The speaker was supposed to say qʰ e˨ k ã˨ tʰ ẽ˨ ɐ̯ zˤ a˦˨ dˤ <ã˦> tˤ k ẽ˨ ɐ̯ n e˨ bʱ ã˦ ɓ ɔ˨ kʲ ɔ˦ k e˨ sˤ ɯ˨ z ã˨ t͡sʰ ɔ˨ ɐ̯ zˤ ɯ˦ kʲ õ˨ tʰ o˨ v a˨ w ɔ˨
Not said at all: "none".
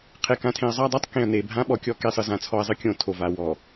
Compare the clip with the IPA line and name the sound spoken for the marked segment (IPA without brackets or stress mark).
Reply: a˦